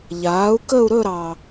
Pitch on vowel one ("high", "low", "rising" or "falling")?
rising